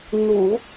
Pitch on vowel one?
low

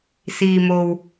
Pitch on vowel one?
low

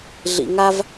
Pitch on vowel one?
low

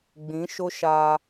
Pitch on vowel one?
rising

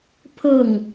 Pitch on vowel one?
falling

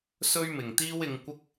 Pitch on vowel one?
high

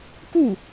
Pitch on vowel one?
falling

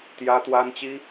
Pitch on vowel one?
high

